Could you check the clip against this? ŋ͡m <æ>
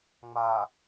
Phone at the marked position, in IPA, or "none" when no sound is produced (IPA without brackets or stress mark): a